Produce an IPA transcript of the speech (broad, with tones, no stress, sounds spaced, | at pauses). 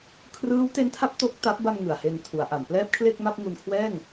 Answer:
kʰ r ɯː˦˥ w t e˦˥ n tʰ a˦˥ p̚ t o˥˩ k̚ t a˦˥ p̚ b a˧ m ŋ ɯ˨˩ a̯ h e˧ n tʰ u˩˦ a̯ ʔ a˩˦ m p l ɛː˥˩ p̚ kʰ l e˥˩ k̚ m a˥˩ p̚ ŋ u˧ n kʰ w ɛː˥˩ ŋ